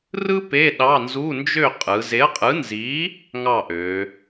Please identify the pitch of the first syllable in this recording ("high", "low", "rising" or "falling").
high